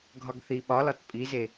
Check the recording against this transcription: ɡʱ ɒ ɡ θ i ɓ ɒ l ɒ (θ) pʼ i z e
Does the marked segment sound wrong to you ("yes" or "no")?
yes